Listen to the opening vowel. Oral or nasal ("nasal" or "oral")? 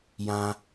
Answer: nasal